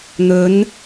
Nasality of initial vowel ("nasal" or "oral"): oral